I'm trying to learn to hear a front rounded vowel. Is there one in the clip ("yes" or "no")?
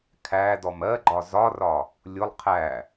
no